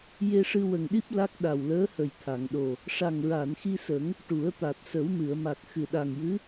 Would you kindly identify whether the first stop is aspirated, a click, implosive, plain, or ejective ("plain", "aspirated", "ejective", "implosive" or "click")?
implosive